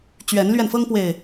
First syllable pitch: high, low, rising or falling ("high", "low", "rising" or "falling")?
rising